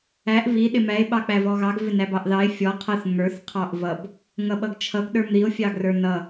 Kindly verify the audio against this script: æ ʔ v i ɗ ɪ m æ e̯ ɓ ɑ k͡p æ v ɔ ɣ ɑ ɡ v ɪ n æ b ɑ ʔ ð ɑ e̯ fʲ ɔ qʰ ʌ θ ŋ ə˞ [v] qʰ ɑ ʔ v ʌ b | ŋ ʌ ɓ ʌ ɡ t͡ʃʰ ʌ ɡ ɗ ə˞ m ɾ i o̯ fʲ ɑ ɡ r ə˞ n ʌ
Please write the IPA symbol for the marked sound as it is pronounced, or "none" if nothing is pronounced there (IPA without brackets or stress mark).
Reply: θ